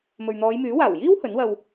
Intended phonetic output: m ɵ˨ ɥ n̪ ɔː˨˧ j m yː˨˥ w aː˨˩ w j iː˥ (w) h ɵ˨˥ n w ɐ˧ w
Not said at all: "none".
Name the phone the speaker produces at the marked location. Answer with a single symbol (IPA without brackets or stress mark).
w